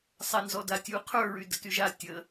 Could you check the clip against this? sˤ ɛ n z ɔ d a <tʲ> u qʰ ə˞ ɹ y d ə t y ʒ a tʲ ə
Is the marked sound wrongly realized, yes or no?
no